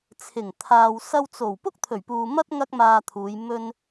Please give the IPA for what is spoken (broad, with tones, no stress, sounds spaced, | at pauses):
t͡sʰ ɪ˨˩ ŋ t̪ʰ aː˨ w s ɐ˧ w t͡s o˨˩ w p ʊ˥ k̚ t̪ʰ ɵ˨˩ ɥ p uː˨ m ɐ˥ t̚ ŋ ɐ˥ k̚ m aː˧ t̪ʰ uː˨˧ j m ɵ˧ n